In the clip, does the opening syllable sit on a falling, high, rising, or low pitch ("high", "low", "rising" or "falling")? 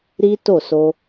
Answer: high